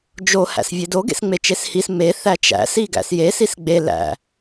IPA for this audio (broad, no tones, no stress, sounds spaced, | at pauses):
d͡ʒ o h æ̰ s vʲ e d o ɡ ḛ s ŋ͡m e t͡ʃ e s h i s m e θ æ t͡ʃ æ̰ s i ɡ æ̰ s j e s i s ɡ͡b e l æ̰